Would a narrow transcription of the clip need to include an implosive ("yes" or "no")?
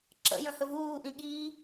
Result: yes